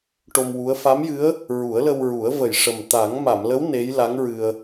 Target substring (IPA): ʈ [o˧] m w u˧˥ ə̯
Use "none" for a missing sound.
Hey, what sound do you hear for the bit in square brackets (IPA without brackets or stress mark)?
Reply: o˧